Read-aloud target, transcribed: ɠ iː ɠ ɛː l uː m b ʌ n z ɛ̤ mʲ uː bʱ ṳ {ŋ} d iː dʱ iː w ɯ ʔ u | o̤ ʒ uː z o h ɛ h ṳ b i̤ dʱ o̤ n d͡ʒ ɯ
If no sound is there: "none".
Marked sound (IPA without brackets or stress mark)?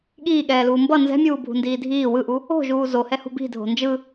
n